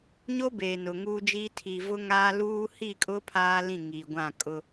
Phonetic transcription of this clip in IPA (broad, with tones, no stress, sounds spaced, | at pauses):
ɲ o˦ b eː˨ n ʊ˨ ŋ uː˦ d͡ʒ iː˦ tʰ i˨ v ʊ˦ ŋ aː˦ l uː˦ h i˦˨ kʼ ʊ˦ pʰ aː˦ l ĩ˦˨ ŋ iː˨ ɡʷ ã˦˨ kʼ ʊ˦